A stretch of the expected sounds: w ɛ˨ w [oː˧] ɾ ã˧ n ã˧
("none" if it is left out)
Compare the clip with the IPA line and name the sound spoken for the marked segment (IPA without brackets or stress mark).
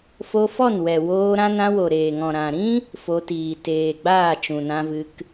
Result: oː˧